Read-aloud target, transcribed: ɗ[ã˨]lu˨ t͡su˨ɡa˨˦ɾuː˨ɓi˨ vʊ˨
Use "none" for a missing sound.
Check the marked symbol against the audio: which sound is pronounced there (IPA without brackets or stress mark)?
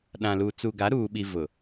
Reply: ã˨